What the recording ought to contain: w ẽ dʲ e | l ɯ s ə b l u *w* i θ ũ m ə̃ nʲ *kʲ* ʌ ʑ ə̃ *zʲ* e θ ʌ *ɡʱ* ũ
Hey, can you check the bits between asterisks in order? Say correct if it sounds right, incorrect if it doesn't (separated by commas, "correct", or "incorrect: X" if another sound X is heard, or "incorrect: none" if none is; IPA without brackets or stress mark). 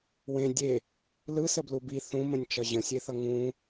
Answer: incorrect: b, incorrect: t͡ʃ, incorrect: sʲ, incorrect: ŋ